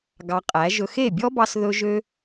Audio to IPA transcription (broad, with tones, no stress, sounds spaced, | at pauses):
ɡ ɑ˧ qʼ æ˨˦ ʒ ɵ˧ x e˦˨ bʲ ɔ˦ b ɑ˧ s ð ɵ˧ ʒ ø˦